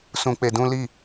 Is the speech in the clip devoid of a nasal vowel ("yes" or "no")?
no